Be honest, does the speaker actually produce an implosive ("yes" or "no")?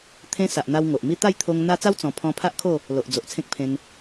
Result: no